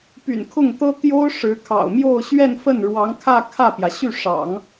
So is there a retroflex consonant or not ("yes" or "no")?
yes